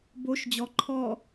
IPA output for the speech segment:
b o ʃ d͡ʑ ɔ ǃʰ ɔ

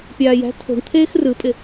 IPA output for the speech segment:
pʲ aː j æ̤ tʰ o̤ ɳ t̪ʰ eː x r ɯ pʼ ɪ

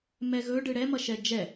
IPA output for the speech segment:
m ɛ ɣ ɵ ɖ ɯ ɽ ɛ m ʌ ʃ ɛ d͡ʒ ɛ

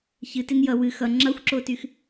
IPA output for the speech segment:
ç ɨ t e n j ʌ w ɨ x ʌ ŋ͡ǁ ʌ xʷ ǁ o t y x

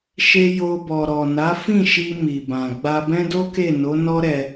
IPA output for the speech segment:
ʃ e˧ j o˧ b ɔ˨ ɾ ɔ˨ n a˨˦ f ĩ˦˨ ʃ i˧ m i˨ b ã˨ ɡ͡b a˧ b ɛ̃˦ d o˦ k e˦˨ n o˨˦ n ɔ˦ ɾ ɛ˧

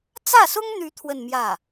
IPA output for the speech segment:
t͡s ä˥˩ s ʊ˥ ŋ n̪ y˧˥ t̪ʰ w ə˥˧ n m j ä˥˩

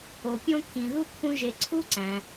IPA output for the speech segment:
o˩ pʲ õ˦ kʰ ĩ˩ ð u˥ kʰ ũ˦ ʒ e˨ ǀʰ u˦ ǀ æ̃˩

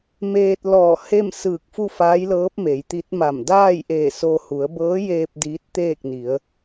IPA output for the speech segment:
m eː˧ t̚ l ɔː˧˩ h e˥˨ m s ɯː˧˩ k̚ f u˥˨ f aː˧˥ j l ɤː˧˥ p̚ m e˩˧ j t̪ i˧˥ t̚ m a˧˩ m d aː˥˨ j ʔ eː˧˩ s o˧ h u˩˧ ə̯ b ɤː˧˥ j eː˧ p̚ d iː˧˥ t̚ t̪ eː˥˨ k̚ n i˩˧ ə̯

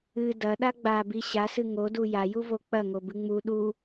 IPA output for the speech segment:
ɨ d ɐ ɗ a ɡ͡b a b i ɕ a s ɨ ŋ o d u j a j u v o k͡p ɐ ŋ o b ɨ ŋ͡m u ɗ u

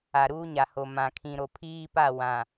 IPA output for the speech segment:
a˨ ɾ uː˦ ɲ a˨ h o˨ m ã˨ kʰ ĩ˨ ɾ o˨ pʰ iː˦ p a˦˨ w ã˨

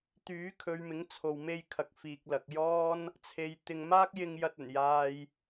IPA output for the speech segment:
t̪ yː˨˥ kʰ ɵ˨˧ ɥ m ɪ˨˥ ŋ t͡sʰ o˨ w m e˧ j kʰ ɐ˨ k̚ f iː˨ k̚ l ɐ˨ k̚ j ɔː˥ n | t͡sʰ e˨˧ j t̪ ɪ˧ ŋ m aː˥ k̚ j ɪ˧ ŋ j ɐ˧ t̚ ɵ˨˩ n j aː˧ j

